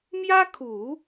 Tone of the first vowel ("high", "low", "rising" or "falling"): high